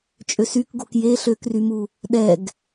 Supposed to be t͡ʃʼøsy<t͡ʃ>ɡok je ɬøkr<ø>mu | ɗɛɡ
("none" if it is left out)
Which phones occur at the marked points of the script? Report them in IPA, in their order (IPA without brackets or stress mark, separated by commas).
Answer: k, y